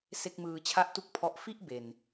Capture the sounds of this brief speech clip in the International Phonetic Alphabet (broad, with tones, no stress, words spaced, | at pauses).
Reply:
se˥˩k̚ mɯː˧t͡ɕʰa˥˩ʔtu˥˩k̚ pʰɔ˥˩ʔ fi˥˩ʔ be˨˩n